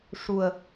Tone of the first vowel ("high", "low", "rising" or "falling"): low